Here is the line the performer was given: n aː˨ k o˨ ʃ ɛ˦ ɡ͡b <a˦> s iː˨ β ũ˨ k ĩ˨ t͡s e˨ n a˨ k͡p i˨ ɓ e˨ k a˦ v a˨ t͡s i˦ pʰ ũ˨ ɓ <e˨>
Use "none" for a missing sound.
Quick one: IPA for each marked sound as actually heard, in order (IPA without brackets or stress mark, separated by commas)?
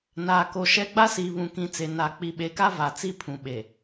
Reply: a˦, e˨